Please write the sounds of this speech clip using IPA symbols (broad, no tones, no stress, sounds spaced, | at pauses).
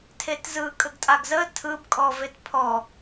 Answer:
tʰ e t z ɯ kʼ ə ɡ tʼ a ɡ z ə tʰ ɯ b kʼ ɔ v e t pʰ ɔ